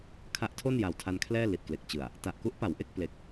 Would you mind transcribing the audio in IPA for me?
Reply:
kʰ a˦˥ ʔ tʰ o˥˩ n j a˨˩ w tʰ a˧ n kʰ l ɛː˥˩ l i˨˩ t̚ k l e˨˩ k̚ t͡ɕ ɯ˨˩ a̯ | t a˨˩ ʔ k u˦˥ ʔ p a˩˦ w ʔ e˥˩ k̚ p l e˨˩ k̚

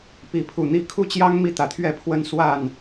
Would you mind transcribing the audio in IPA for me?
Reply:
p i˨˦ pʰ u˨˩ n̪ i˥˨ kʰ u˥˨ t͡ɕ j ɑ˦ ŋ m i˥˨ t̪ ä˨˦ t̪ʰ ɥ ɛ˥˨ pʰ w ə˦ n s w a˥˨ n

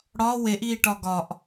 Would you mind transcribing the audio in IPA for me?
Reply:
ɽ ɒ w e ʔ iː ʈ ɒ ɡ ɒ ʔ

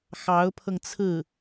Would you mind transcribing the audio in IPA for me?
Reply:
x ɑ˧˥ ʊ̯ pʰ ɤ˧ ŋ t͡sʰ ɹ̩˥˩

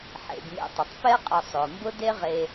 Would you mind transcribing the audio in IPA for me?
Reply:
ħ ḛ˩ b m ḛ˨ tˤ ə˩ tˤ p ɛ˦ qʼ ə˨ sˤ ʊː˩ m b ʊ˦ d e˦ ʁ e˨

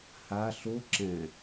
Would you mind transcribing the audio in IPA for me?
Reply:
h a ɬ o ǁ ɛ̃

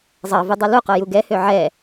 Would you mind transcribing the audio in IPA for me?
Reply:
zˤ ɑ v ʉ dˤ ɛ l u q o j u ɡ ɛ h ø ʕ ɛ

